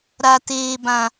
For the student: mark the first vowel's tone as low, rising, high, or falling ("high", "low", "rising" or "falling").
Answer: low